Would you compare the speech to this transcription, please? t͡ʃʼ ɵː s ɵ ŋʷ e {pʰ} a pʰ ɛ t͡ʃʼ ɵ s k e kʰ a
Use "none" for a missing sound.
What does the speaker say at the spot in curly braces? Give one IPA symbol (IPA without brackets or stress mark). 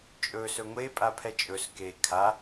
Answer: pʼ